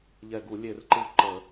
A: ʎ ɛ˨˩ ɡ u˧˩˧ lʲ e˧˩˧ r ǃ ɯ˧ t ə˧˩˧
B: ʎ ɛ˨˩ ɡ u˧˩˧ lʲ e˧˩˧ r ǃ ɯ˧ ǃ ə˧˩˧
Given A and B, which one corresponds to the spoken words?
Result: B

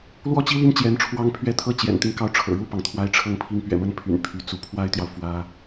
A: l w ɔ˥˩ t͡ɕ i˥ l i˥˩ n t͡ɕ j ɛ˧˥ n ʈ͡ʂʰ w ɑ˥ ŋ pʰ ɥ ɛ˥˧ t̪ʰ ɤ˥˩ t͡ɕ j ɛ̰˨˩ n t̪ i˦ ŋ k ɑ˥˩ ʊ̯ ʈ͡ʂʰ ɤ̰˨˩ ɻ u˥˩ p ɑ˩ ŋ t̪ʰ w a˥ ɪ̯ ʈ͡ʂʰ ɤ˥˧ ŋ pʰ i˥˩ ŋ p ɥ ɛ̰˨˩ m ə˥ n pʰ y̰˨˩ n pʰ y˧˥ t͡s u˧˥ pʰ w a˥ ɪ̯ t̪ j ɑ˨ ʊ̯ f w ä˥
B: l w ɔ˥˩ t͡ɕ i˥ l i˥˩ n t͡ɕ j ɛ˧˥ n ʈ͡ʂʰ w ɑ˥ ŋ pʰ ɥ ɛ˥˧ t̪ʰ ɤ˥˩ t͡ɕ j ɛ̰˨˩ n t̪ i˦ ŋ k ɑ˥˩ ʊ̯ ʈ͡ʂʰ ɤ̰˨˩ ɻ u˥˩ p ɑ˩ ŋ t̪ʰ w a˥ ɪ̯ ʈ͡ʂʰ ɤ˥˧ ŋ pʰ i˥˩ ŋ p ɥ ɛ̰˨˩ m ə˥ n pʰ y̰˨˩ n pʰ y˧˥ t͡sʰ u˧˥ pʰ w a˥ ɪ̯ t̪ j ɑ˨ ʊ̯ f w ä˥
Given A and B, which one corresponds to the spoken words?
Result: A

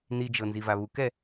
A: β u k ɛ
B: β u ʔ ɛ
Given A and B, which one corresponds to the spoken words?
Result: A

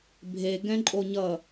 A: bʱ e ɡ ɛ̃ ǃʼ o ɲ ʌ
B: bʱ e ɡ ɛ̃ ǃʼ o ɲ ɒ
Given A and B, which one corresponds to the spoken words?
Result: A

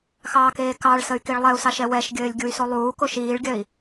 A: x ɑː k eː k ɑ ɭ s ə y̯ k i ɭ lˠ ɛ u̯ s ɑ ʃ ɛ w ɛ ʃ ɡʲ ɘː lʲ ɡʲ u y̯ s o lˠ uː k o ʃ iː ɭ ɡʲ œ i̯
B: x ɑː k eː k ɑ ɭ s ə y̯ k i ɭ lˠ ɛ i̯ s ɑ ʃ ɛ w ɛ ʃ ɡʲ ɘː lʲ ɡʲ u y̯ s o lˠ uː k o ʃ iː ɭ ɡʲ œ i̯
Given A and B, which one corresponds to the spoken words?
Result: A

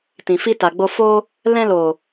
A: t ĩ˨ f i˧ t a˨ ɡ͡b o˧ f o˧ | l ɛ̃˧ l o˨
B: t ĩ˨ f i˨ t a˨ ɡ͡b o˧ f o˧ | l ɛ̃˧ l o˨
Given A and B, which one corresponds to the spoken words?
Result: A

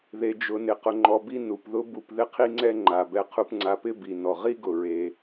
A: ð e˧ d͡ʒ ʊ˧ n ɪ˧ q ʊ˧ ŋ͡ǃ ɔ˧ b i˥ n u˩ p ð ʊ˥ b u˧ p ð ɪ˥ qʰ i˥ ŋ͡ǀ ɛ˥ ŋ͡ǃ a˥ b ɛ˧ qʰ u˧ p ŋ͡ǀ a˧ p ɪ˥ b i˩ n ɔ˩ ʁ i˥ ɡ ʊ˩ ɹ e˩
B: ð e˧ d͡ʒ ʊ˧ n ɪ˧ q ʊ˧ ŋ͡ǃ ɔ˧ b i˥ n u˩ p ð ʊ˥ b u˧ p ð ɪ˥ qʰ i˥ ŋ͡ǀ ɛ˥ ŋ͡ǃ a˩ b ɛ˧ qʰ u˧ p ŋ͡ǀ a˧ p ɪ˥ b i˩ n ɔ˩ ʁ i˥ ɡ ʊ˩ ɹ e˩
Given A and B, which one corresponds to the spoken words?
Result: B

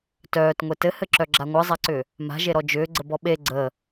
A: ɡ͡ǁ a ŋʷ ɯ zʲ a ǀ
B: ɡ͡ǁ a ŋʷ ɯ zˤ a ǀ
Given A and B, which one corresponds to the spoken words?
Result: B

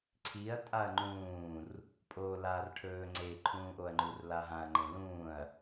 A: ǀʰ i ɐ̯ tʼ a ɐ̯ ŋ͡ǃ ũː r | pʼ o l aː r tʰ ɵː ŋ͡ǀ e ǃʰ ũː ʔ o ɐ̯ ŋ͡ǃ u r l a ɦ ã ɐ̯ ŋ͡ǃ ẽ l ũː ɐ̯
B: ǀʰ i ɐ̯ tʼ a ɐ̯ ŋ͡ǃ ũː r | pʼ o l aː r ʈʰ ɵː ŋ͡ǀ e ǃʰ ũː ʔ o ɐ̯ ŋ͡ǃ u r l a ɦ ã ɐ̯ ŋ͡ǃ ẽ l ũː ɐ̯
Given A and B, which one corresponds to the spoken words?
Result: B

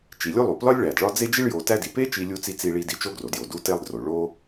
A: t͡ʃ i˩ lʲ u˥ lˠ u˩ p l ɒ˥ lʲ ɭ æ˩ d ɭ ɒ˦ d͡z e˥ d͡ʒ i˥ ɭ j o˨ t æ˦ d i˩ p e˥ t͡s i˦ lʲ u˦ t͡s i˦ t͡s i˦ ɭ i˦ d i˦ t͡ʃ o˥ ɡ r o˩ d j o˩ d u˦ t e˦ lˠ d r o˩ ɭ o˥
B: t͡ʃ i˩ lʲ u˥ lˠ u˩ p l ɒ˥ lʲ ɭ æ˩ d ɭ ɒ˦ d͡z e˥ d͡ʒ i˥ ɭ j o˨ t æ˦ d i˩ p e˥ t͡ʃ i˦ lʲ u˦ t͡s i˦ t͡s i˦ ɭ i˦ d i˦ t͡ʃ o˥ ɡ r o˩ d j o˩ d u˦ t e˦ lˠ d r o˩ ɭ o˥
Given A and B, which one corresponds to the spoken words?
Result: B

